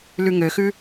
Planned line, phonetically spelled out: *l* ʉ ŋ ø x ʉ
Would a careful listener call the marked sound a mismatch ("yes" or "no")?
no